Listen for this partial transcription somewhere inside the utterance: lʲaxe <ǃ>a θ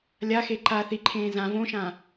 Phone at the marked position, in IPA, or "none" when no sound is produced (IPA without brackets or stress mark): ǃ